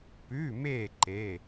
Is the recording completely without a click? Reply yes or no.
no